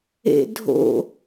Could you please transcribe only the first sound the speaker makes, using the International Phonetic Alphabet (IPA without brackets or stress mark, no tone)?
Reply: ḛ